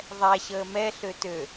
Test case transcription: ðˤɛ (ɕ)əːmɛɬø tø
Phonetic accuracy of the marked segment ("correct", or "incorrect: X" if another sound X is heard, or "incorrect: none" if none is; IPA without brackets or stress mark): correct